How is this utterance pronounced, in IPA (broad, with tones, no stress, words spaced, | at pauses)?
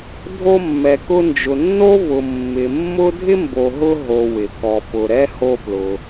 dʱo˦mːɛ˨kʊ˦ nd͡ʒʊ˨nːo˥vʊ˨ mːɪ˨mːʊ˥ dʱɪ˥mbo˨ɦʊ˦ ɦo˨wɪ˩ kɔ˨pʊ˨ ɾɛ˥ ho˦plʊ˨